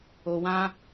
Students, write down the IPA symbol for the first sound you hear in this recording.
o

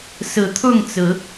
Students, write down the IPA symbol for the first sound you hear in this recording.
s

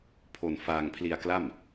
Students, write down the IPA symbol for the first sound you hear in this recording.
pʰ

